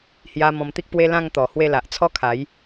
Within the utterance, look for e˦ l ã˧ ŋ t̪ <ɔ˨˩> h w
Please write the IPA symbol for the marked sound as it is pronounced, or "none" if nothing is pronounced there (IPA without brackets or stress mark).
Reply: ɔ˨˩